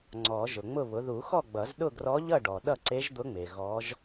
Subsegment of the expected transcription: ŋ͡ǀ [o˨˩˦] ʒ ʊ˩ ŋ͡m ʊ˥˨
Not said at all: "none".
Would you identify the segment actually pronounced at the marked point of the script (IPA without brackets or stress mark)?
ɔ˨˩˦